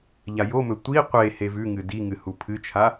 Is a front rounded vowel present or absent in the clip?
absent